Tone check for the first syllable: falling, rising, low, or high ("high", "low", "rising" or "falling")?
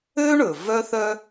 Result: high